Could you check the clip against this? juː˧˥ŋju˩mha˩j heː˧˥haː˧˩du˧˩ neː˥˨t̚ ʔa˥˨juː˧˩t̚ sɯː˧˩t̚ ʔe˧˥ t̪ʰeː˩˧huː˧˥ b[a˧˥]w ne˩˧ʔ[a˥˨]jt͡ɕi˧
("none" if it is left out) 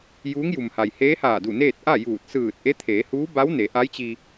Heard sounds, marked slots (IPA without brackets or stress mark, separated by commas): a˧˥, a˧˥